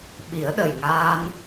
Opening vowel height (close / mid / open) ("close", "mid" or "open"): close